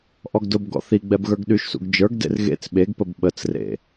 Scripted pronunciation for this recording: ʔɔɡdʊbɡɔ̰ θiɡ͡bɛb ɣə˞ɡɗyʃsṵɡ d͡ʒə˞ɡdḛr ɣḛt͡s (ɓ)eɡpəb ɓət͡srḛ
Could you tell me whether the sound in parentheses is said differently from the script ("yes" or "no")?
no